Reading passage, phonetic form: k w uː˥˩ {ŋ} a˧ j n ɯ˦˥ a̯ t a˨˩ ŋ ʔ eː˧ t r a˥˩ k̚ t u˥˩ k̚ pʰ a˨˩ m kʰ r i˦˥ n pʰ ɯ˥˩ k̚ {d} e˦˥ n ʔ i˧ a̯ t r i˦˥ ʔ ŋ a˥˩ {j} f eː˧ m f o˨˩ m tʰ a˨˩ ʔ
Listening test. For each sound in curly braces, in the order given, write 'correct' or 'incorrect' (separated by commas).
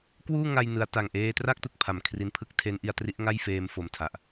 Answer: correct, incorrect, correct